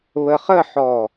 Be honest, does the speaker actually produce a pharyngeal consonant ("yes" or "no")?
yes